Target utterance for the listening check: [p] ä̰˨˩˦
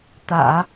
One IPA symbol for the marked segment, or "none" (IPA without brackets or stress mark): t̪